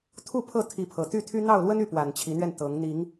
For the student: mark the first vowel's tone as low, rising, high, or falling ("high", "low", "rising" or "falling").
falling